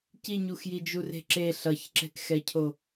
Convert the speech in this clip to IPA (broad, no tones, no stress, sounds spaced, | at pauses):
c i ɲ u x j i d͡ʒ u r e̤ ǁ e ɬ ʌ ç ǁ ɛ̤ k x ɛ cʰ o